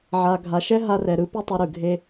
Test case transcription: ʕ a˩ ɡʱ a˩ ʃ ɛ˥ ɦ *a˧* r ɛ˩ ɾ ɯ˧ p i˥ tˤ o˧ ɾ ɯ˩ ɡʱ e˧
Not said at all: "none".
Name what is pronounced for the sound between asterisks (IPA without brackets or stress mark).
a˧